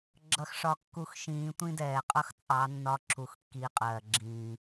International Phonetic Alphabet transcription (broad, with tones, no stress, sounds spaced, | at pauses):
ɡ͡ǁ ʌ˧ x ʂ ɒ˧ kː u˧ x ʃ ĩː˨˦ tʷ ĩ˦ d ɛː˨ qʼ ʌ˦ x t͡sʼ ɑ˨˦ nː ɒ˧ ǁʰ u˧ x kː iː˧ qʼ ɜː˨ ɡ͡ǁ ĩː˨